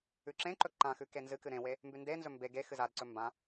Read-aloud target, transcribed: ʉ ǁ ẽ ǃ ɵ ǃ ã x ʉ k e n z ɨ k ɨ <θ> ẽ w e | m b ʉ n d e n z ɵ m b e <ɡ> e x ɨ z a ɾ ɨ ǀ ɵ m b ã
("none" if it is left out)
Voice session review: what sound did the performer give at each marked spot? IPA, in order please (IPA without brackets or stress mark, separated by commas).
ɾ, ɡ